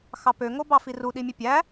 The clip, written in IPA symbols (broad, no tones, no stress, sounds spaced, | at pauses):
x ɑ p ø ŋ o b ɑ f i r u ɗ i mʲ ø pʲ æ